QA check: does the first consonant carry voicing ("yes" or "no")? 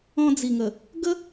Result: yes